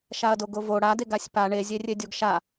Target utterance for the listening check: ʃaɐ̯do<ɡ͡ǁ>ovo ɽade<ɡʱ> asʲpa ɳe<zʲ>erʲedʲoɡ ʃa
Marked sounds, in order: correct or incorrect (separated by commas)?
incorrect, incorrect, correct